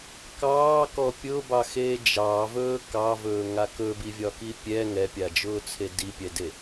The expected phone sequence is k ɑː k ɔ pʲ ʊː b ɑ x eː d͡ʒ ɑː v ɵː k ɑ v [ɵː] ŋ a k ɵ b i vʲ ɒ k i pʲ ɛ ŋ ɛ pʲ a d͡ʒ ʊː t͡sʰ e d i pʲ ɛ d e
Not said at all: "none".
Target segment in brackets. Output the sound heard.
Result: ɵː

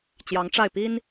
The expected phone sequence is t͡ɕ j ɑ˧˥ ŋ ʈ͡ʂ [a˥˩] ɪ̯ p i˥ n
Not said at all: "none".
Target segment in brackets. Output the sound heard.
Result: a˥˩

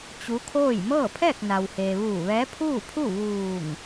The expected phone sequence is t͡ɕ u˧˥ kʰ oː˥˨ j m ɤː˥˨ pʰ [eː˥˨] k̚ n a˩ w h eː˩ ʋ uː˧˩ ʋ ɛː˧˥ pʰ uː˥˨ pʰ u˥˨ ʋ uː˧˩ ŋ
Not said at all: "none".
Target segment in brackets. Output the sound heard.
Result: ɛː˥˨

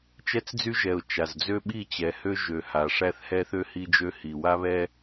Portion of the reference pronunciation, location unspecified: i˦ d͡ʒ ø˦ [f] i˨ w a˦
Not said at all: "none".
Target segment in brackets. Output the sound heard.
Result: h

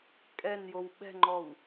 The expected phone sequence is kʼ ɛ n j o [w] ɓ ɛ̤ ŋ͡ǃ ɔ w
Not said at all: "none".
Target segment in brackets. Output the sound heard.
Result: w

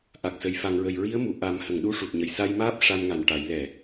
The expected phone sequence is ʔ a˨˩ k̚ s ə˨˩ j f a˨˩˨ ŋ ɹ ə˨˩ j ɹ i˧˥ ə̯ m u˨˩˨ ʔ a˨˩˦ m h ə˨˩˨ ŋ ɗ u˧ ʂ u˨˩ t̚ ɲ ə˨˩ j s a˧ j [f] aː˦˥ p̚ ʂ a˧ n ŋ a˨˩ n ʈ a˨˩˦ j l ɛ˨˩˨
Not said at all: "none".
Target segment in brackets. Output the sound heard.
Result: m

